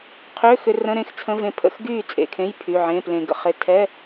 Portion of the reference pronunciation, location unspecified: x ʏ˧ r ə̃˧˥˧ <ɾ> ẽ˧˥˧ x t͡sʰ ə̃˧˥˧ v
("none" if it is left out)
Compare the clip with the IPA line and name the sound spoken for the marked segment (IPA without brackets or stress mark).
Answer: ɾ